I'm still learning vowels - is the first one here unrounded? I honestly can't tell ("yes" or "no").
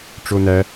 no